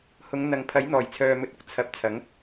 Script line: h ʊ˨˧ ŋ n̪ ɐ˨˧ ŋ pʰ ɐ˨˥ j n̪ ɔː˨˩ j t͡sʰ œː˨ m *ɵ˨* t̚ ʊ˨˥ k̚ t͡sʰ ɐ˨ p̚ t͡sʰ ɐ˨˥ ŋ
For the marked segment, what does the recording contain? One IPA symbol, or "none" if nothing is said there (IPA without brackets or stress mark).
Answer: ɵ˨